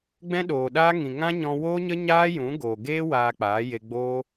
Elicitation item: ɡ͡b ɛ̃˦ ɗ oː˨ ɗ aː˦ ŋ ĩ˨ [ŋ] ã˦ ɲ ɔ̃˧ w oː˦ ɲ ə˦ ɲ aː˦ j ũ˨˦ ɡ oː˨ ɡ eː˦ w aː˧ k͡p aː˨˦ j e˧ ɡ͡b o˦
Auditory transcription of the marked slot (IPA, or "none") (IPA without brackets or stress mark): ŋ